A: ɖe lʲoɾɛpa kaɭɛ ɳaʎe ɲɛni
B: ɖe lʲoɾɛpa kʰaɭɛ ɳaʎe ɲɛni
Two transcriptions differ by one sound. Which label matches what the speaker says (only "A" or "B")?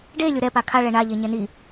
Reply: B